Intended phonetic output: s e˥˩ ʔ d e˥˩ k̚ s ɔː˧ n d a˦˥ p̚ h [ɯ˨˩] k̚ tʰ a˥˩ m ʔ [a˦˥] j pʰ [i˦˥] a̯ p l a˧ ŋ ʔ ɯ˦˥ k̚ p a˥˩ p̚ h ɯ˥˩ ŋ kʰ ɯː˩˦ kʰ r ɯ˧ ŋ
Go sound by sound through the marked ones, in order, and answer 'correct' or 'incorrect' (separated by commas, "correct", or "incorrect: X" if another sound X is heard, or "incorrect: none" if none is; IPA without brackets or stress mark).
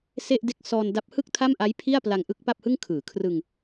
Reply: incorrect: ɯ˥˩, correct, incorrect: i˥˩